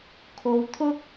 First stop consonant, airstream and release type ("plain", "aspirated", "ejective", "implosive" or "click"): aspirated